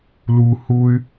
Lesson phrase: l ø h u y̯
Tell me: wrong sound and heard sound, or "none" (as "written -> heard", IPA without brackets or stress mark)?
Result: ø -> u